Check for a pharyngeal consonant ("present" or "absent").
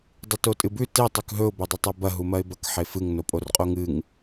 present